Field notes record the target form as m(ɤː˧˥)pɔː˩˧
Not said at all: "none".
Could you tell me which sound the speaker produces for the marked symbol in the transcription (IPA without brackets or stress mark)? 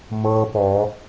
ɤː˧